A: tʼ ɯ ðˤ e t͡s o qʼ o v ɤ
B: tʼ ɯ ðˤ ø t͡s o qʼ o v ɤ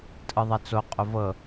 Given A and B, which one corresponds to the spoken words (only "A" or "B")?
A